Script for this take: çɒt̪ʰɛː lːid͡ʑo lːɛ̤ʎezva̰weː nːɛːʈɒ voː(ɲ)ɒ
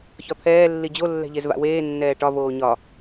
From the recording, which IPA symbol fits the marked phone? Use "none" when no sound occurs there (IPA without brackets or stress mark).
ɲ